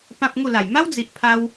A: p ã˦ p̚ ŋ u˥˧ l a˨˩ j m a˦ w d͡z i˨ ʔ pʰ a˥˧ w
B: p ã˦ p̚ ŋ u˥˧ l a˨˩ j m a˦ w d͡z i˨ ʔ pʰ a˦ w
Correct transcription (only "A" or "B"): B